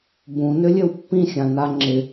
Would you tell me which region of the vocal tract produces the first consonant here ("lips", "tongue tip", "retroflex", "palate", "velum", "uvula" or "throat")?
lips